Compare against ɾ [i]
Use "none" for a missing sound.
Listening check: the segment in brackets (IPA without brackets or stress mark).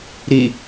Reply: i